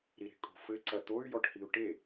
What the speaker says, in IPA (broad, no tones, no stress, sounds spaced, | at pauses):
ɾ i ɾ e̤ kʼ o̤ f ɘ ǀ ɐ t̪ o y̯ j ɔ ʈ h i u̯ ʈ e